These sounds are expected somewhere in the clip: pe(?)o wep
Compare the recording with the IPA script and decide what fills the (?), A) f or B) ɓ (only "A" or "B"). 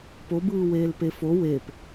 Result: A